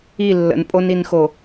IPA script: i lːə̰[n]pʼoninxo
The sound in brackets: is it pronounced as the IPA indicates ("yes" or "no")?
yes